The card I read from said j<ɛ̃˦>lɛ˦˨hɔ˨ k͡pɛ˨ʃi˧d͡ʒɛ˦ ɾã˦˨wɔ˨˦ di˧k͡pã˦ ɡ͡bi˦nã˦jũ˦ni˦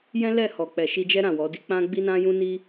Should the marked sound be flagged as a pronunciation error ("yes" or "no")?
no